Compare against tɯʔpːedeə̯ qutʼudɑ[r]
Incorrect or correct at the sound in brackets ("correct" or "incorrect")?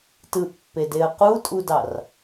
correct